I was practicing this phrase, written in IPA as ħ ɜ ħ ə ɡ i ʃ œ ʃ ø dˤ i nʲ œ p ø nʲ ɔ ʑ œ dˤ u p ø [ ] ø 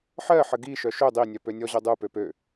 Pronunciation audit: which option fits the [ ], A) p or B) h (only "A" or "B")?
A